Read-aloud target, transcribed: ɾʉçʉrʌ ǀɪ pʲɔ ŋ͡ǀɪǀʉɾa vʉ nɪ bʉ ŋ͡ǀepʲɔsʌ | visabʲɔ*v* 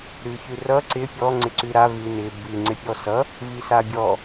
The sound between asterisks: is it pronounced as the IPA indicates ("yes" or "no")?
no